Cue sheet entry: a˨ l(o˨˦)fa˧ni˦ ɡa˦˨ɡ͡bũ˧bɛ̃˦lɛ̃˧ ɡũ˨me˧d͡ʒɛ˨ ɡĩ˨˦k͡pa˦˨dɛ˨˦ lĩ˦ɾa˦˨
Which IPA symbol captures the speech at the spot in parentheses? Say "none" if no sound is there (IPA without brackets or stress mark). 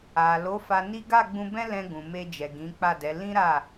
o˨˦